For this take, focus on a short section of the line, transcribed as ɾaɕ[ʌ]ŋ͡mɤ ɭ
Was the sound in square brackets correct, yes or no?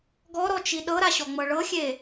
no